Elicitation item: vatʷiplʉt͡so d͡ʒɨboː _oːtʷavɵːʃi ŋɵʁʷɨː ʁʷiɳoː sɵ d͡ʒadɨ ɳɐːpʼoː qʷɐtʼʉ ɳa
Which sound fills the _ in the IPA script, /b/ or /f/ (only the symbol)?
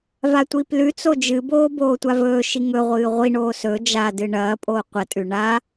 b